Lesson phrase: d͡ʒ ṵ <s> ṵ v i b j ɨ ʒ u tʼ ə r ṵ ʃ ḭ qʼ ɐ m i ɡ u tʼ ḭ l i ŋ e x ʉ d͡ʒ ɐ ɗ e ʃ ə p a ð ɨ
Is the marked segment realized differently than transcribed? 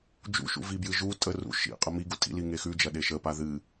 yes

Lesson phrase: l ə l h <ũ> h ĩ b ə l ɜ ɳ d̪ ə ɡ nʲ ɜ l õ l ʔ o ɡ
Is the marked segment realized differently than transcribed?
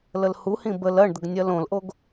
yes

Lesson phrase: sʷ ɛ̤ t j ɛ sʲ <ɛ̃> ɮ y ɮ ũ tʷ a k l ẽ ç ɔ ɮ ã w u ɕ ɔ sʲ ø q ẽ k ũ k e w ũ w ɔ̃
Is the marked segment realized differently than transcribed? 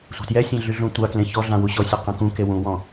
no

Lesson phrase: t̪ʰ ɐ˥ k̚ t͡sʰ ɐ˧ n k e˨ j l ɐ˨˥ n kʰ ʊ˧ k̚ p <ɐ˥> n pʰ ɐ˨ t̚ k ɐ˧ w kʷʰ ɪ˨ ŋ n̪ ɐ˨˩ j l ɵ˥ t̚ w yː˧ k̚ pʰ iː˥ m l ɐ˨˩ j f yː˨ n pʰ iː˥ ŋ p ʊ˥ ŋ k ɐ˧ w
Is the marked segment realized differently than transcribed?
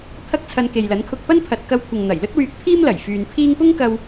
no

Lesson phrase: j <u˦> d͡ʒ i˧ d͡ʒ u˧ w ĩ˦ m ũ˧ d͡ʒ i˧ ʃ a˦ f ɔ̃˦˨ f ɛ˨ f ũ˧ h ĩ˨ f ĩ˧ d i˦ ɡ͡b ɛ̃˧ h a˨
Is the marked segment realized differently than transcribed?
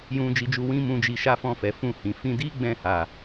yes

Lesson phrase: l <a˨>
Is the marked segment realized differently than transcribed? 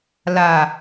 no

